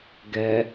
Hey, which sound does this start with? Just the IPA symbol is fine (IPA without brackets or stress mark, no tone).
ɡ